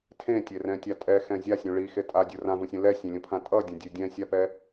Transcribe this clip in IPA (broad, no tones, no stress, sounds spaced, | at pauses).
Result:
tʰ ẽ tʲ e r ɛ̃ tʲ a tʼ ɛ x ɛ̃ zʲ a sʲ ũ ɭ i x e tʼ a dʲ u r ã v ũ sʲ ũ l ɛ sʲ ẽ lʲ ũ pʰ ã tʼ ʌ dʲ ɛ̃ dʲ e dʲ ɛ̃ sʲ a p ɛ